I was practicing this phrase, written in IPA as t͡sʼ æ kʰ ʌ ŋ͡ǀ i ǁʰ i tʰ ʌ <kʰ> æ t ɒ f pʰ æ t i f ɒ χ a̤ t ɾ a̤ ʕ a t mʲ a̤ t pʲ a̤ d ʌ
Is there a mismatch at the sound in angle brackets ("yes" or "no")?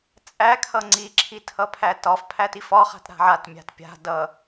yes